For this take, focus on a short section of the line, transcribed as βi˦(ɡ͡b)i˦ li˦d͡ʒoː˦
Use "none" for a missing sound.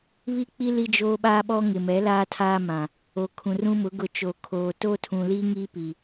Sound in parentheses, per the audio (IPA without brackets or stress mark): k͡p